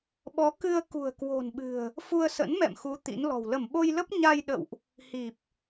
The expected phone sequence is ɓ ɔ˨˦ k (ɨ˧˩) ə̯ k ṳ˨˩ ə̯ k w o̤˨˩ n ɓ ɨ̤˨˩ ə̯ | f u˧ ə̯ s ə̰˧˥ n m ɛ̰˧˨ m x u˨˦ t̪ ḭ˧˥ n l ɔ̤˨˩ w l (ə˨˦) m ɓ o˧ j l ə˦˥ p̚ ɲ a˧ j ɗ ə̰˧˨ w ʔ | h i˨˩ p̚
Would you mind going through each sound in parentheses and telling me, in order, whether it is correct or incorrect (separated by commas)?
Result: incorrect, incorrect